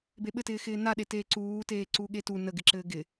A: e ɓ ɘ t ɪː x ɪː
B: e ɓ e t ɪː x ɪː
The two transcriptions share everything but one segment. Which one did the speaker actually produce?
A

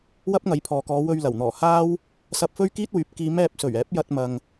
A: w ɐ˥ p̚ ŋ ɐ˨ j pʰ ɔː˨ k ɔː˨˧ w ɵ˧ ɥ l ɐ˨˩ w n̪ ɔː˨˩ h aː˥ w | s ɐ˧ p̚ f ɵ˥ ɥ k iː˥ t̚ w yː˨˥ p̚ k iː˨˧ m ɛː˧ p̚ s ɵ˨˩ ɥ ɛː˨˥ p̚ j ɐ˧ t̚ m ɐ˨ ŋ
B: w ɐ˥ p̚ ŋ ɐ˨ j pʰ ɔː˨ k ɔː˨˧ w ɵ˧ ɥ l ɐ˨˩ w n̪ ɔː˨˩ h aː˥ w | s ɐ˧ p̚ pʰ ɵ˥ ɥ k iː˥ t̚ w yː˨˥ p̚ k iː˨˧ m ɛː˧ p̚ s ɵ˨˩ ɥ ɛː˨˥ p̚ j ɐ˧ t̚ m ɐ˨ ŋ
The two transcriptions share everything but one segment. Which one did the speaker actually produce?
A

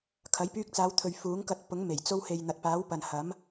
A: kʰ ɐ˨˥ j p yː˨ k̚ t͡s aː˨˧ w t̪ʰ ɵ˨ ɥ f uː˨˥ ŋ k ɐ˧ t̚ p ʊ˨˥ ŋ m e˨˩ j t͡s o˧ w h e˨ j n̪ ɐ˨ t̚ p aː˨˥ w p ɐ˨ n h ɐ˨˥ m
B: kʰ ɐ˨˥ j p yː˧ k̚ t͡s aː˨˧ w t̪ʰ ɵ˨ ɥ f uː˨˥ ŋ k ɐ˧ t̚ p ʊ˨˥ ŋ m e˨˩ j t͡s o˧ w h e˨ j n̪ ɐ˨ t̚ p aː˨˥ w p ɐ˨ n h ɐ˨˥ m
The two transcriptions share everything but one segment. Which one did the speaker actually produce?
B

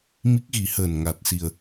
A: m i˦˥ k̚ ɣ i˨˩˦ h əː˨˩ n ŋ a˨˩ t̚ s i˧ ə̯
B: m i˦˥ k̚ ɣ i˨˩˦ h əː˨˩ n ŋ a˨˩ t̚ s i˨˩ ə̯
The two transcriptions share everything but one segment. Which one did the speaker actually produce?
B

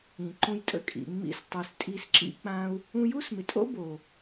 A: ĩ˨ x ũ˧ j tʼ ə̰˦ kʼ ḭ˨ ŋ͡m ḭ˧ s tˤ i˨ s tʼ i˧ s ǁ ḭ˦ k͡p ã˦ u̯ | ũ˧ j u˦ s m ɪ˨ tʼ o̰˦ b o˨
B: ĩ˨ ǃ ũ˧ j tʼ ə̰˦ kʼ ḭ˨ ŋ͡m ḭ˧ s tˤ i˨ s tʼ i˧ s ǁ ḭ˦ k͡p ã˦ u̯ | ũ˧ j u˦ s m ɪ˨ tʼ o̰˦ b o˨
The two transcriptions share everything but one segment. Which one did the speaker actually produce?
B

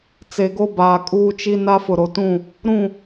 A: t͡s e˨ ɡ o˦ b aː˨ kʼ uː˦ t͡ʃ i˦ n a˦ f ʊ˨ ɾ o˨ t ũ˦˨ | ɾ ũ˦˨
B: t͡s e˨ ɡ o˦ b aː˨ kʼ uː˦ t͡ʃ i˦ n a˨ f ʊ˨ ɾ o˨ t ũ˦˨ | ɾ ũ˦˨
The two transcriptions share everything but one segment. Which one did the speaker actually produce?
A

